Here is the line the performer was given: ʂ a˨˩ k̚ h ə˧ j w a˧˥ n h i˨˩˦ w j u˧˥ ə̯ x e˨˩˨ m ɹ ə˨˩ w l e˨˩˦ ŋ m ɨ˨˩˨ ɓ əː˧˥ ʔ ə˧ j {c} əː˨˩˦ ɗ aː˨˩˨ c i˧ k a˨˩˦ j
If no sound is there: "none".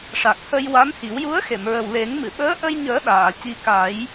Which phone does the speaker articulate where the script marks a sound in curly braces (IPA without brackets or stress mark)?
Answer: ɲ